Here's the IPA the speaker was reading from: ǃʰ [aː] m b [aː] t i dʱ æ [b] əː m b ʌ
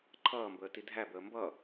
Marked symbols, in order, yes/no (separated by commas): no, no, yes